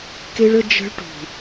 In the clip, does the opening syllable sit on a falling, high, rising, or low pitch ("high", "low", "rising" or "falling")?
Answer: high